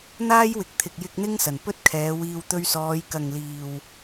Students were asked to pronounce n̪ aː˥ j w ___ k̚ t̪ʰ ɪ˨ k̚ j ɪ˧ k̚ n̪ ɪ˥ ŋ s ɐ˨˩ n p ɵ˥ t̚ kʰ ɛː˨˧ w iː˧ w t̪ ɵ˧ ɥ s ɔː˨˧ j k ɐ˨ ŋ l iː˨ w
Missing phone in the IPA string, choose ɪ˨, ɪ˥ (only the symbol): ɪ˨